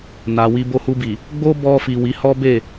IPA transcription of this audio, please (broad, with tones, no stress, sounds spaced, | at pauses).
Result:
n a˨ w i˧ b o˧ h u˧ b i˨ | ɡ͡b o˦ b ɔ˧ f i˨ w i˨˦ h ɔ˦ b e˦˨